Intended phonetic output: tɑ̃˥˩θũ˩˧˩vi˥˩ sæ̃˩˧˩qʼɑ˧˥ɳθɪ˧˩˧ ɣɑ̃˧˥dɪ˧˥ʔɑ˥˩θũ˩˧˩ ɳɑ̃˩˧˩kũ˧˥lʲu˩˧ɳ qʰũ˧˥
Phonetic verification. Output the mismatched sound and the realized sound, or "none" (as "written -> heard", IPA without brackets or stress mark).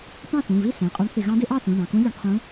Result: none